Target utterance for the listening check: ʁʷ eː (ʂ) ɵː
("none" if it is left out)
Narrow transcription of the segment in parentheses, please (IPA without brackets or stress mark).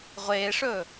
ʂ